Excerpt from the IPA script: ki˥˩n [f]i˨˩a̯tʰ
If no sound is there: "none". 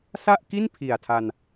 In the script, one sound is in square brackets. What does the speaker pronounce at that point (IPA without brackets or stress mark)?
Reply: pʰ